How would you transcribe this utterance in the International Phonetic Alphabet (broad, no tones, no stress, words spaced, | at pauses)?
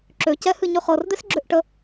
ǁøcɛhɨ ɲøχɤrd̪es ɡ͡ǁøʔʈə